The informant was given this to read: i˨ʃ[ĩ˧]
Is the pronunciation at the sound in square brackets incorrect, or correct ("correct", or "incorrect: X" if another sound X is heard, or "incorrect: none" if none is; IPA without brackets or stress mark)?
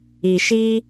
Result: incorrect: i˧